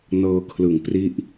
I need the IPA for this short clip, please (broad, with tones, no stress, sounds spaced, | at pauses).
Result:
n ɤː˧ kʰ l ɯ˨˩ ŋ p r i˦˥ ʔ